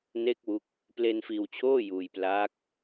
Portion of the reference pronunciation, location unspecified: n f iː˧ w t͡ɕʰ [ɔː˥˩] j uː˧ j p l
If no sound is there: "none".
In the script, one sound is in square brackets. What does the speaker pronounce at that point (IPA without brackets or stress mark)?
oː˥˩